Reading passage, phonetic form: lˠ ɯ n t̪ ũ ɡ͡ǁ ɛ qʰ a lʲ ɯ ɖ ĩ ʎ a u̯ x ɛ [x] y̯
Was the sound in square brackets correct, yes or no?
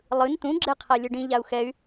no